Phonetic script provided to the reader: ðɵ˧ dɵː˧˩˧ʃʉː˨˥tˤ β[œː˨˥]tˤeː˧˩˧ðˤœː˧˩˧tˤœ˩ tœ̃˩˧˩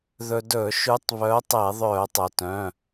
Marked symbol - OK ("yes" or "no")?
yes